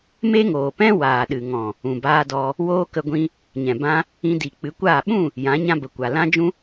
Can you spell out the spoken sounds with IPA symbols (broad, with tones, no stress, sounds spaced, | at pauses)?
m e˦ ŋ oː˨ p ɛ̃˦ w aː˨ ɗ ɨ˨ ŋ ɔ̃˨ | ũ˨ b aː˧ d ɔ˧ | w oː˦ k ə˧ ɡʷ ĩ˧ | ɲ ɛ̃˨ b ã˧ | ĩ˧ d i˨ k͡p ɨ˨˦ kʷ aː˦˨ ɓ ũ˦˨ | j ã˨˦ ɲ ã˧ b ə˨ kʷ a˨ l ã˦ d͡ʒ ũ˦